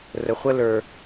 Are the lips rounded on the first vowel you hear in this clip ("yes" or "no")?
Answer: no